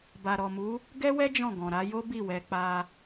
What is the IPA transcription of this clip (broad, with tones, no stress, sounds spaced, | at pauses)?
b a˨ ɾ ɔ˨ m u˨˦ | ɡ ɛ˦ w ɛ˦ d͡ʒ ɔ̃˦˨ ɡ ɔ̃˨ ɾ a˧ j o˦ b i˦˨ w ɛ˨˦ k͡p a˧